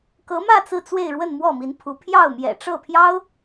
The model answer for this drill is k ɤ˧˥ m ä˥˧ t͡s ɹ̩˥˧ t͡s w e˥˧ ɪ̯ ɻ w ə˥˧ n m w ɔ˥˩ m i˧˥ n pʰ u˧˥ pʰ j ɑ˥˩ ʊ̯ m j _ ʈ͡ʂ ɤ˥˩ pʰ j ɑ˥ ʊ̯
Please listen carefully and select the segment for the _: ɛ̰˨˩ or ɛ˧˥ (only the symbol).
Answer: ɛ̰˨˩